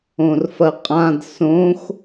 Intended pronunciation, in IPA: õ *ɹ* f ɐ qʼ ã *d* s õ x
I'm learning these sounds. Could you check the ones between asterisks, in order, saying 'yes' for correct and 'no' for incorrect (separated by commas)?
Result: no, yes